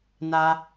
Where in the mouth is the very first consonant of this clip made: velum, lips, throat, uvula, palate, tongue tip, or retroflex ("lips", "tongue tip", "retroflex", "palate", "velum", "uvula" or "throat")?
tongue tip